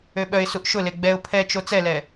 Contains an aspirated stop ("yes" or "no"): yes